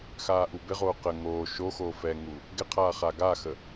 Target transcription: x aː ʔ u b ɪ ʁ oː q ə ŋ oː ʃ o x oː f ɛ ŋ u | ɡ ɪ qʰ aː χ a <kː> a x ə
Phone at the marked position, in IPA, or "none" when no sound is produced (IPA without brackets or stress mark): ɡ